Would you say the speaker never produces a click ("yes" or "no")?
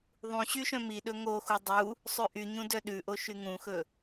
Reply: yes